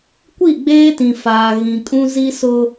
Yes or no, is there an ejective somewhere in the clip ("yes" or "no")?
yes